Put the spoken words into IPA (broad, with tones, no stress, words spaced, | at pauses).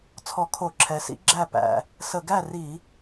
t͡sʰɔ˧˩˧kʰo˧˩˧ǁʰɛ˩˧sḭ˨˥ ɡ͡ǁæ˥˩pæ̰˨˩ | sə˧˩˧ɡæ˥˩ri˧˩˧